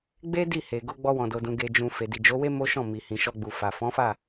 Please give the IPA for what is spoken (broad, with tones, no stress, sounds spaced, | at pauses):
ɡ͡b e˦ d i˦˨ h e˨ ɡ o˧ ɡ͡b ɔ˧ w ɔ̃˨ d o˨ d ũ˨ ɡ e˨ d͡ʒ ũ˨ f e˨ d i˨ d͡ʒ o˨˦ w e˦ m o˦ ʃ ɔ̃˦˨ m i˨ h ĩ˨ ʃ ɔ˧ ɡ͡b u˨ f a˨ f ɔ̃˨˦ f a˦˨